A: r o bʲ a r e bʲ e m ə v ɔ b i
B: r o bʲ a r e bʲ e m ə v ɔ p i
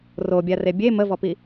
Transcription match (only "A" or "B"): B